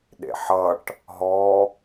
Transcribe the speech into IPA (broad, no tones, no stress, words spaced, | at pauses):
ɗḛħʌʈ | ɦɔ